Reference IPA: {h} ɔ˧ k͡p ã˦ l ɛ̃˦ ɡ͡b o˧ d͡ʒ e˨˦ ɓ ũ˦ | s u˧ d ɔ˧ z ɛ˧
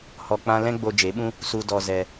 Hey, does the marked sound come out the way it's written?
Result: yes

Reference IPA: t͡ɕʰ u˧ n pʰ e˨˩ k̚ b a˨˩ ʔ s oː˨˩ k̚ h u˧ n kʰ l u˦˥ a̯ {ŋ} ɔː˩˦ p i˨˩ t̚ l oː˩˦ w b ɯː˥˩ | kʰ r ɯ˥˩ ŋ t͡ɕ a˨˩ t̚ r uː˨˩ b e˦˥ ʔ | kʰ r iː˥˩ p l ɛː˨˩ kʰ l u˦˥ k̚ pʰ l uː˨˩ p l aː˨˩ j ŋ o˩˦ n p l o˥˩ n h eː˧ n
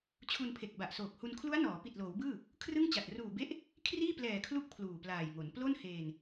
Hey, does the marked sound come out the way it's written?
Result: no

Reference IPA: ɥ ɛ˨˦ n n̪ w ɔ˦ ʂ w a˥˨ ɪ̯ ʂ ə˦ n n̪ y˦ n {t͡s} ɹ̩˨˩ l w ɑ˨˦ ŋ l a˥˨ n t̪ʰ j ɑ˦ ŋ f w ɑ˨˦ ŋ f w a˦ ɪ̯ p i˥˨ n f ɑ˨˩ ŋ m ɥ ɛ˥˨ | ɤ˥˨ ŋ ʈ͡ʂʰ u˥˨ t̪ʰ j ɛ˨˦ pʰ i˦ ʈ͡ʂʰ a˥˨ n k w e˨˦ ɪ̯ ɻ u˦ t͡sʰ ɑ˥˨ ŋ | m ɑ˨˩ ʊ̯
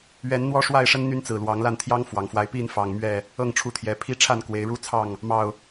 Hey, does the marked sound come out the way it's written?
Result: yes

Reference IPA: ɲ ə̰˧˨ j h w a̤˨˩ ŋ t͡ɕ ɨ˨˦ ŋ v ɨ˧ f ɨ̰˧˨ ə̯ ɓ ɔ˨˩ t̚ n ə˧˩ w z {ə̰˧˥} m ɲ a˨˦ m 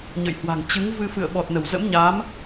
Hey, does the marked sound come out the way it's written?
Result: yes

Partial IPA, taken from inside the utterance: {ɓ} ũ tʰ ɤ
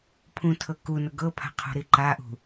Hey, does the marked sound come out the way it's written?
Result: no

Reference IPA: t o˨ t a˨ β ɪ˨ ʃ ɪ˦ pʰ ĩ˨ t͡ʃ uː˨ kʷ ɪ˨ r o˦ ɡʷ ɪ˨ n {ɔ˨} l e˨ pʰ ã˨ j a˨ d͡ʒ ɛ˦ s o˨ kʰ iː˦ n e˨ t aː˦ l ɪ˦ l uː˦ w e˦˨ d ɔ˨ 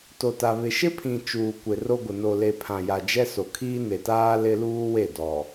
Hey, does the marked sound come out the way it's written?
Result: no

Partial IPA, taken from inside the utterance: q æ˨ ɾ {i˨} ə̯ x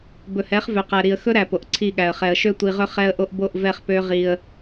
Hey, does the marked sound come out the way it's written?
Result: yes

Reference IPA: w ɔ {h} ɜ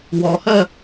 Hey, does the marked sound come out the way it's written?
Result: yes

